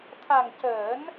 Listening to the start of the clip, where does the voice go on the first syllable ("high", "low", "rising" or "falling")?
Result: low